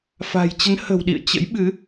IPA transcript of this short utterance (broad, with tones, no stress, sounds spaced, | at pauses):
f a̤˨˩ j t͡ɕ ə˨˦ n h ə̤˨˩ w ɗ ḭ˧˨ ə̯ t͡ɕ ə̰˧˥ j ɓ ɨ˨˦